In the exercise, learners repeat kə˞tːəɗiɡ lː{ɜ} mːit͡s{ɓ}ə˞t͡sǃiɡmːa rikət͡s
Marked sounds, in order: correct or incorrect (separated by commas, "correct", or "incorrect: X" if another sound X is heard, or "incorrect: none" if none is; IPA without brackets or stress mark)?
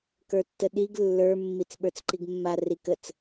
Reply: incorrect: ə˞, correct